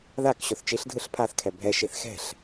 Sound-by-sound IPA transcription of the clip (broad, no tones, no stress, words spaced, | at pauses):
ðak ɕoθt͡ʃiɬ dʱɯɬpʰaθ kʰɛbʱɛ ʃiθxɛ̤ɬ